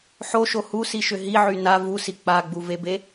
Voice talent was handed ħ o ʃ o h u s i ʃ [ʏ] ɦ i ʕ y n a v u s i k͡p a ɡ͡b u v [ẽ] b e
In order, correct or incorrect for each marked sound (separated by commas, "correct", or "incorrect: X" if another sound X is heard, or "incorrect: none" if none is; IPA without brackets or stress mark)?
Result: correct, incorrect: e